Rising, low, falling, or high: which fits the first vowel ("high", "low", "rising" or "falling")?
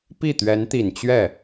falling